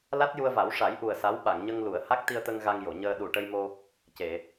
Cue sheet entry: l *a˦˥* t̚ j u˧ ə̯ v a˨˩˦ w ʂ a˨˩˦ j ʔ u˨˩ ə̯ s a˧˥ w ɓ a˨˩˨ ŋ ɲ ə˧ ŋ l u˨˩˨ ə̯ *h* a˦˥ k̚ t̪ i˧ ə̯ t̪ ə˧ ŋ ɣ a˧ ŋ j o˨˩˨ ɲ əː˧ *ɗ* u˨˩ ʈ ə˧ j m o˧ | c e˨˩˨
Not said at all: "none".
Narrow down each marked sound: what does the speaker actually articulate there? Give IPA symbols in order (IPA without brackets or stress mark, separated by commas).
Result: a˦˥, h, ɗ